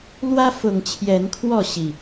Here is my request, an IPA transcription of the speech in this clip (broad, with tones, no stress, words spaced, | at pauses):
lwä˦fʊ˨˩ŋ t͡ɕʰjɛ˨˦nkʰwɔ˥˨ ɕi˨˩